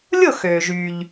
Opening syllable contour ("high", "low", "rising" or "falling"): falling